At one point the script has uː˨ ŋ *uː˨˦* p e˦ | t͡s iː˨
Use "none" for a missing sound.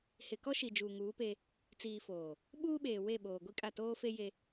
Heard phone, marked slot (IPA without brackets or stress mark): uː˨˦